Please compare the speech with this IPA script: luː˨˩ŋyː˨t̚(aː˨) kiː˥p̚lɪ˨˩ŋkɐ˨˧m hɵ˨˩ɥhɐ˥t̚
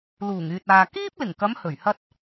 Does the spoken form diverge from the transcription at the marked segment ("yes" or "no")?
no